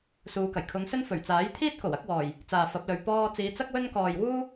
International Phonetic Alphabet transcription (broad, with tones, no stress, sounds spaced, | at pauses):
s uː˨˧ k ɐ˨˩ j kʰ ʊ˨˧ ŋ s ɵ˥ n f ɵ˨˩ ɥ t͡s aː˨˥ j t̪ʰ iː˥ t̚ k o˨˩ w ɐ˨˥ k̚ w ɔː˨˩ j | t͡s aː˨ f ɐ˨˥ p̚ l ɵ˨˧ ɥ p ɔː˧ t͡s iː˨˧ t͡s ɐ˥ k̚ w ɵ˥ n k ɔː˨ j w uː˥